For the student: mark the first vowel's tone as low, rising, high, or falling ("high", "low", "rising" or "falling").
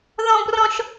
high